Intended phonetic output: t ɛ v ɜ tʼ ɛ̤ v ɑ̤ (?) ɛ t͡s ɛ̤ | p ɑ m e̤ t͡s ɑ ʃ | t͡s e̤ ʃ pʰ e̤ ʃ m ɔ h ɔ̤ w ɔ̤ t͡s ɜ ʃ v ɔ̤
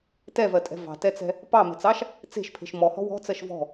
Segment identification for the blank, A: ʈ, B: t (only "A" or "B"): B